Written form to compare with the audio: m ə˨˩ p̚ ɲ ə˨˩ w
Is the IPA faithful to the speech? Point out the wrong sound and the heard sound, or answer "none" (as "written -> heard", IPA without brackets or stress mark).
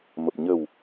none